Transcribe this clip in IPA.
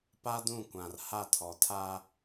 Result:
p a˦ d ũ˦˨ kʷ ã˨ r h a˦˨ tʰ ɔ˨ tʰ a˦

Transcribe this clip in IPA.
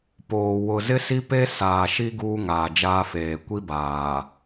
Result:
p oː˨ w ʊ˨ z ɪ˦ s i˦ p e˦ s aː˨ ʃ i˦ ɡ uː˦ ŋ aː˨ d͡ʒ aː˦ f eː˨ kʷ i˦ b aː˨

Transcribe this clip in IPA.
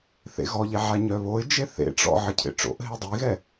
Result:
θ ḛ ɣ ɔ ʎ e ʕ a ɲ œ β o ɪ̯ d͡ʒ e θ ḛ ʈ͡ʂ ɔ̰ ʕ ə cʰ ḛ ʈ͡ʂ o̰ ʔ ɦ e dˤ i ɣ ɛ

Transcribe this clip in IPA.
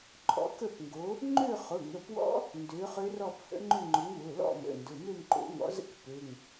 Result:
ǃʼ ɔ̰˦˥ k ə˥˧ p ŋ ɡ o˨˥ | ŋ͡ǃ ø˥˧ χ ʊ˩˧˩ ŋ ə˩˧˩ p w ɔ̰˦˥ | n d ø˨˥ χ ø˦˥ r ɔ˥˧ p h ə̰˦˥ ŋ͡ǃ ʏ˥˧ ŋ͡ǃ ʊ˨˥ ŋ w ʊ˩˧˩ l ɔ̰˥˧ m ə̰˩˧˩ n d ʊ˩˧˩ m ø˥˧ m ǃ o̰˨˥ ŋ ɔ̰˨˥ z ə̰˥˧ k p ø˩˧˩ ŋ

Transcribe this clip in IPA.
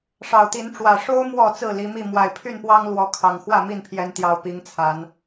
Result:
ʂ ɑ˨˩ ʊ̯ t̪ i˨˦ n ʈ͡ʂ w ä˨˩ ʂ o˦ ʊ̯ m w ɔ˥˨ t͡s ɹ̩˥˨ l i˨˦ m i˥˨ m w a˨˩ ɪ̯ pʰ y˥˨ n p w ɑ˦ ŋ l w ɔ˨˦ kʰ ɑ˨˩ ŋ x w ä˥˨ m i˥˨ n pʰ j ɛ˨˦ n t̪ j ɑ˨˩ ʊ̯ p i˨˦ ŋ t͡sʰ a˨˦ n

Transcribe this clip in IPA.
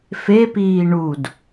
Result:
f e p iː ɳ u d

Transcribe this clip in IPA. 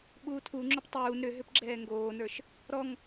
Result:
ɓ uː tʰ u ŋ͡ǁ ʏ p tˤ uː n ɾ ʏ ɦ ʏ p ɡ͡ǁ ɛː ŋ ɡ oː n ə˞ ʃ | ɾ ɔ ŋ

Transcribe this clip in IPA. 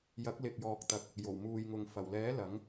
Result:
j ɐ˨˥ k̚ l ɪ˨ k̚ j ɔː˨ k̚ t̪ ɐ˨ k̚ | j o˨˩ w m uː˨ j ŋ ʊ˨ ŋ f ɐ˨˩ w l ɛː˨˥ l ɐ˨˥ ŋ

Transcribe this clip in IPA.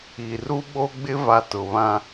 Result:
i˨ r u˦ ɓ o˦ ɡ͡b ɪ˦ v a˨ t ʊ˨ β ã˦

